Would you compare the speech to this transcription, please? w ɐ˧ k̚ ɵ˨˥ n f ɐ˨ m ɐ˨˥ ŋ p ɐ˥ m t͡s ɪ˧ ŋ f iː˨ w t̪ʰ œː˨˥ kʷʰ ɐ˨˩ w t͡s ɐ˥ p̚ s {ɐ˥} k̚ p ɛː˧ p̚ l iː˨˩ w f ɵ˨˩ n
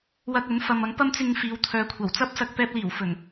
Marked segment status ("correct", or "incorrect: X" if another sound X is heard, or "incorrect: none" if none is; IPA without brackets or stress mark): incorrect: ɐ˧